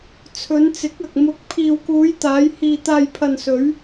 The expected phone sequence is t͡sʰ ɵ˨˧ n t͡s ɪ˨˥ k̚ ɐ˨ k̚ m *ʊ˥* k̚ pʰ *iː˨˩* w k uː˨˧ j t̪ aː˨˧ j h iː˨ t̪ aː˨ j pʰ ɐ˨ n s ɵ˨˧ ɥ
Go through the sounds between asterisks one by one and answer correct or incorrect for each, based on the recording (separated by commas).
incorrect, incorrect